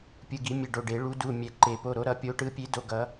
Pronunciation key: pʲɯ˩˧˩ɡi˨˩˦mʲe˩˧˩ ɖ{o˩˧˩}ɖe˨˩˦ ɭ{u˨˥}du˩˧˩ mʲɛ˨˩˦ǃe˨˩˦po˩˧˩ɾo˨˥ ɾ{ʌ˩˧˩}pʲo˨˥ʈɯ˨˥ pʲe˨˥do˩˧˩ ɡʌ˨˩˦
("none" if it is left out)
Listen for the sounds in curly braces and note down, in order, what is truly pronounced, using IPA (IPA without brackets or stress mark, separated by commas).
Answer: o˩˧˩, u˨˥, ʌ˨˩˦